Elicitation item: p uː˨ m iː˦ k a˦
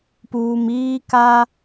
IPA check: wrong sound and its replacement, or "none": none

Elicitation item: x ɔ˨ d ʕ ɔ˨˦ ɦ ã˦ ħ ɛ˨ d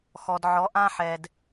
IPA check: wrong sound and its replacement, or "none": ɦ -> ʔ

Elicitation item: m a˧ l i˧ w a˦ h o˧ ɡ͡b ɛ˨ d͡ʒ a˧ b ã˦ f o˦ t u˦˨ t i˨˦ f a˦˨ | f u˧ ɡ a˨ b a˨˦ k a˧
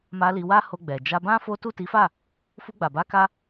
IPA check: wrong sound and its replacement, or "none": ɡ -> ɡ͡b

